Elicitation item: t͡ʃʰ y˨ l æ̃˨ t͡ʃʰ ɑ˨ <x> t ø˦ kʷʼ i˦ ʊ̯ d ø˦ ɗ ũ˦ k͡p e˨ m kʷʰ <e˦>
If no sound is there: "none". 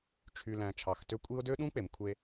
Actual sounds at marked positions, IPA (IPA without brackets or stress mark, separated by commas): x, e˦